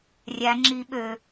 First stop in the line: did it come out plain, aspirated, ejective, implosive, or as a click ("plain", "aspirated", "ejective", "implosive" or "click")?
click